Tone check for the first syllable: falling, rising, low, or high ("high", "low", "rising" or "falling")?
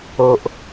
low